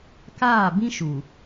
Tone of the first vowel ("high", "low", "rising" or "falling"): falling